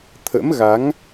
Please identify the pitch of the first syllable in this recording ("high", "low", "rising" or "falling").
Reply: rising